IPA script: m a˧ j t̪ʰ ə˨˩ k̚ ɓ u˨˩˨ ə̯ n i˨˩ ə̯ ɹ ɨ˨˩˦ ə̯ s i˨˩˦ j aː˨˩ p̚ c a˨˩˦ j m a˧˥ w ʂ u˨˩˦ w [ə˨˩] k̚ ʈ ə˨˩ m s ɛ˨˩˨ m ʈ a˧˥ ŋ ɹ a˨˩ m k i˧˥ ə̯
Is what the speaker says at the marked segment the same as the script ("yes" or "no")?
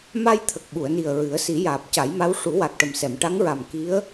no